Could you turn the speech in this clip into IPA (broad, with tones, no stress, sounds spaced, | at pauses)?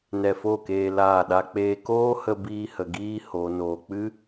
n ɛ˧ f o˦˨ k eː˧ l aː˦˨ ɗ a˦ k͡p eː˦ k oː˦ h ə˧ b iː˧ h ə˨ ɡ iː˧ h o˨ n oː˧ k͡p ɨ˦